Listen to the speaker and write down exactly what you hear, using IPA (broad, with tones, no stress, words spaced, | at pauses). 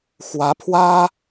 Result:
xwä˧˥pʰwä˥